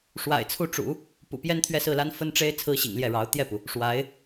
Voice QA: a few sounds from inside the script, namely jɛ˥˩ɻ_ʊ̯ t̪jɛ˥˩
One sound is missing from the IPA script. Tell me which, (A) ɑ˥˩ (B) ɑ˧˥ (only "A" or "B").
B